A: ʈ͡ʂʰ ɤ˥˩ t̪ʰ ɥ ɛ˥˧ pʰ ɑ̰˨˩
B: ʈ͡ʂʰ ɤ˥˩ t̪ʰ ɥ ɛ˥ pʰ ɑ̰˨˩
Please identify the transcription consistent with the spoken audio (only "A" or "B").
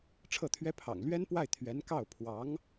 B